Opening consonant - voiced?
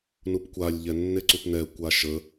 yes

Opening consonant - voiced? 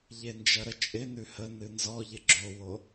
yes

